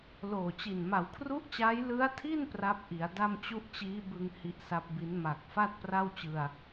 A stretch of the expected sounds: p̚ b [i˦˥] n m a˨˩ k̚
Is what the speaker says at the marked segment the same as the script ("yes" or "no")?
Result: yes